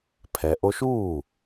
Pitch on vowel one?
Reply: low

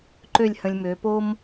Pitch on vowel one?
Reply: falling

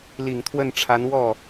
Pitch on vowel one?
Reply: low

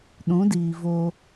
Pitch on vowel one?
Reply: rising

